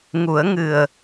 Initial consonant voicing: voiced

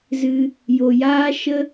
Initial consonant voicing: voiced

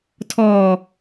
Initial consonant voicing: voiceless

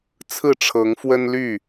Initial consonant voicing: voiceless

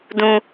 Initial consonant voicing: voiced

